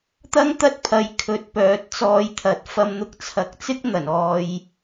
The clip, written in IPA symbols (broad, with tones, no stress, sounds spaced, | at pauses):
t̪ ɐ˥ ŋ t̪ ɐ˥ t̚ pʰ ɐ˨˧ j kʰ ɵ˨ t̚ p œː˨˥ t̚ t͡s ɔː˨˧ j t̪ʰ ɐ˨˥ t̚ f ɐ˧ m n̪ ʊ˧ k̚ t͡sʰ ɐ˨˥ k̚ t͡s ɪ˥ k̚ n̪ ɐ˨˩ n ɔː˨ j